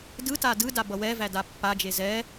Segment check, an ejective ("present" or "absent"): absent